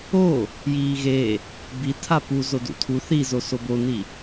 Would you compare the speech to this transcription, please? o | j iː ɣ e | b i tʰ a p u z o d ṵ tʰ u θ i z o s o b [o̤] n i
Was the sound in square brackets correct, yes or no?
no